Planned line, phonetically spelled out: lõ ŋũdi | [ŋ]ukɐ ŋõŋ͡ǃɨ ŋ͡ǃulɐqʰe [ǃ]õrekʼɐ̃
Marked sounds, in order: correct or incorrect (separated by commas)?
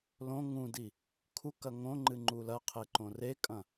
incorrect, correct